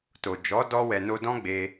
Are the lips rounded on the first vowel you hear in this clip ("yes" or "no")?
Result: yes